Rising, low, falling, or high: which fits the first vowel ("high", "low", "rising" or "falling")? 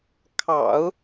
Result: low